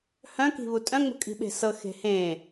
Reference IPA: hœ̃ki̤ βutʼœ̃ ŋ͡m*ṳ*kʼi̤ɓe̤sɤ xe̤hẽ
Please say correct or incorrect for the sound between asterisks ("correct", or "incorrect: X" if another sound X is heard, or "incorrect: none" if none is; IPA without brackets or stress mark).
correct